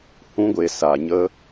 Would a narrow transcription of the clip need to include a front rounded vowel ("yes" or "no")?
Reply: no